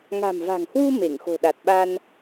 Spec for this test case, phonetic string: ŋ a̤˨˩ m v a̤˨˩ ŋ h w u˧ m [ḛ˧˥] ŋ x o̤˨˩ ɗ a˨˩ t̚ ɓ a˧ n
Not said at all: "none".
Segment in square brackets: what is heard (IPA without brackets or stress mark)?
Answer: e˧˩